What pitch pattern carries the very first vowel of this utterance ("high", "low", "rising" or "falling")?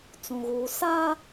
low